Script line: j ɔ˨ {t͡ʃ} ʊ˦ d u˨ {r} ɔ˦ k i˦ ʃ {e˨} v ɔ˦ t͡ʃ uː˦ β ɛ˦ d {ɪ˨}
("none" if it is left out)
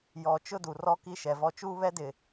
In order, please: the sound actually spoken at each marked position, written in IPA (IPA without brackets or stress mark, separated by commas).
t͡ʃ, r, ɛ˨, ɪ˨